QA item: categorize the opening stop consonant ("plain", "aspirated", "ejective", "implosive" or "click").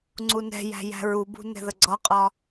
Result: click